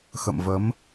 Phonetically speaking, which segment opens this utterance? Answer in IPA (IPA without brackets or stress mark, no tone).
x